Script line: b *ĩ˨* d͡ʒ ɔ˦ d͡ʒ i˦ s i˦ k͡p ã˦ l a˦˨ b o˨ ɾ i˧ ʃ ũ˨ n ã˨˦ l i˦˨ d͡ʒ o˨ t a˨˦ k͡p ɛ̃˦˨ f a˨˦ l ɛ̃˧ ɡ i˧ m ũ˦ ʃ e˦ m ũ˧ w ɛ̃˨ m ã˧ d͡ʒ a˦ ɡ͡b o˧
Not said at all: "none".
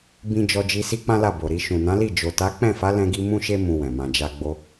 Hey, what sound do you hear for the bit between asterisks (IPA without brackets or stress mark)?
ĩ˧